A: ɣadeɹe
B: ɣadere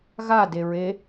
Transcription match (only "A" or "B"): A